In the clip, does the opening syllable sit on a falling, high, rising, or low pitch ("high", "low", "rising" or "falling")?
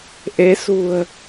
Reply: rising